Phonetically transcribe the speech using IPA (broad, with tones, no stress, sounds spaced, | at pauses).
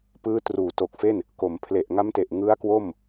p ɯː˦˥ t r uː˩˦ t o˨˩ k̚ f e˥˩ n | k o˩˦ m pʰ l e˨˩ ʔ ŋ a˦˥ m t e˨˩ ʔ ŋ ɯ˦˥ a̯ k w o˥˩ m